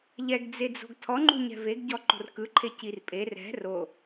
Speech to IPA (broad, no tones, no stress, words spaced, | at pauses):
ʎɛɡd͡zed͡zo̤ɡ tʰɔ ŋ͡ǃṳɲɛ̤veɡ ɟɔǃo̤rkɯǃʰe cirpʼer ɛ̤ ro